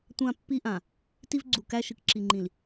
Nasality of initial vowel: nasal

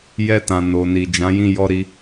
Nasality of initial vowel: oral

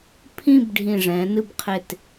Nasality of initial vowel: nasal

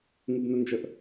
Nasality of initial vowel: oral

